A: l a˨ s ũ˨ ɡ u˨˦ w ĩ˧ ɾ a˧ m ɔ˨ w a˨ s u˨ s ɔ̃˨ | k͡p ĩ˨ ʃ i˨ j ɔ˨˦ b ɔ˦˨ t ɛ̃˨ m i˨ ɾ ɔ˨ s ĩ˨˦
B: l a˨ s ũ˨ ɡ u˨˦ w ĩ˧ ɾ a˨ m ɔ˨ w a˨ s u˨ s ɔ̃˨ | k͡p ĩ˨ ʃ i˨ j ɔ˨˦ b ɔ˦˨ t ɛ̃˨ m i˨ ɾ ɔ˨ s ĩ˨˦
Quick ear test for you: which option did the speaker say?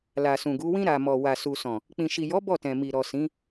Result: B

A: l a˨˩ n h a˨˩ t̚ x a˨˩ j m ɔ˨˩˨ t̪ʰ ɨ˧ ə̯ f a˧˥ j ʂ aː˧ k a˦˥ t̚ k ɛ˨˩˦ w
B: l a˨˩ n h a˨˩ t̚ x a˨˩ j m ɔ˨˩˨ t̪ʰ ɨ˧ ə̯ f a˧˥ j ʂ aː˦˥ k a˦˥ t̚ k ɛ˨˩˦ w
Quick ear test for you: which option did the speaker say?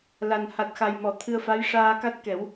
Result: A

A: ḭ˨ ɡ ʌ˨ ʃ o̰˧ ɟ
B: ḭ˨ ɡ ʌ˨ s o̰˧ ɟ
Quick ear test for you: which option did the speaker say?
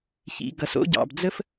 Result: B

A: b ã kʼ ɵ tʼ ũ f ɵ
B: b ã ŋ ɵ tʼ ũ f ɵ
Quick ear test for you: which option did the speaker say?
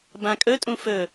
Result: A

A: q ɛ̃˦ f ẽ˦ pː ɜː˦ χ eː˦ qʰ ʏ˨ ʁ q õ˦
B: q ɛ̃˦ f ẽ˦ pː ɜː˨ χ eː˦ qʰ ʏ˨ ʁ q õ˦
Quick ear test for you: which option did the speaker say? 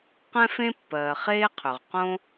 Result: B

